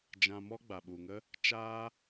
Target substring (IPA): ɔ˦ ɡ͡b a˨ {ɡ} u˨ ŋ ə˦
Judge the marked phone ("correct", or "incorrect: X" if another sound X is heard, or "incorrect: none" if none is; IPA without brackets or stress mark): incorrect: ɓ